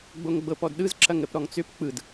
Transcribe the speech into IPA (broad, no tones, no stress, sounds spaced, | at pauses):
ɡ͡b o ŋ ɡ͡b ɤ p ɔ d ɗ ɯ z ǁ ɐ ŋ ɾ ə p ɾ ɔ ŋ t͡s ʏ p k͡p ɯ d